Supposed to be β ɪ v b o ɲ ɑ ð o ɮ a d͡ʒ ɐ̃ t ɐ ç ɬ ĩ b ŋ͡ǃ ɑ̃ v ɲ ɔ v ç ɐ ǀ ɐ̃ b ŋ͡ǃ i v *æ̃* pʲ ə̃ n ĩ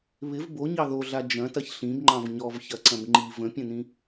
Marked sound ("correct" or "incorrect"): incorrect